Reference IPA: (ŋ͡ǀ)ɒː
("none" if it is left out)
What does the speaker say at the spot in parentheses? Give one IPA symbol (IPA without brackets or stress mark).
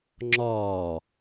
ŋ͡ǁ